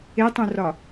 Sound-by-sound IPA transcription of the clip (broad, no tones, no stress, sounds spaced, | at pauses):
e tˤ ũ r ɒ